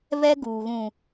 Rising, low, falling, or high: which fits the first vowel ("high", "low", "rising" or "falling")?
high